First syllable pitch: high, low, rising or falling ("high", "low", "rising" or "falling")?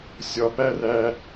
low